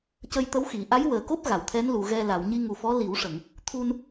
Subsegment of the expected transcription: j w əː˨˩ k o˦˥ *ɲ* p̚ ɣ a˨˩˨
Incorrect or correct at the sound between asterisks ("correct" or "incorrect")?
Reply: incorrect